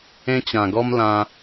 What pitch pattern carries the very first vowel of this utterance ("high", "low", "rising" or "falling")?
high